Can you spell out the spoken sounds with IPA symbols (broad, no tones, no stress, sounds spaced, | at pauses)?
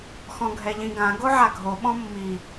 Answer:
x ɔ̃ ɡʱ ɛ ʎ ĩ ɡ ã ɡ o ʕ a ɡʱ o ɓ ɔ̃ mː i